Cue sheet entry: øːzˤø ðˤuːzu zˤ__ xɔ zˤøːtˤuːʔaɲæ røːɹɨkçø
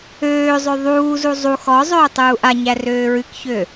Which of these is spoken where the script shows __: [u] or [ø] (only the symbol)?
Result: u